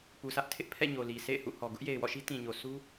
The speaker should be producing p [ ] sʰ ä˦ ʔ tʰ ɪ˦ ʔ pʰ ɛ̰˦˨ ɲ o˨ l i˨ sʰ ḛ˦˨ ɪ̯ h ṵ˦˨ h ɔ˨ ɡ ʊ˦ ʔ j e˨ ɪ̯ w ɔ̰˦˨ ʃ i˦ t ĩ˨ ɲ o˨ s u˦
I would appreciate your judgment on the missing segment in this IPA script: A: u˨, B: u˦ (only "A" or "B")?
A